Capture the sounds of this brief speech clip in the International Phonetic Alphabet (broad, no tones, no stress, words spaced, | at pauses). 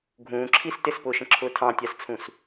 ɡʱũːǁʰis tɪspʊːʃə̃ǁʰʊː tʰɑ̃tʲɑst͡sʰũs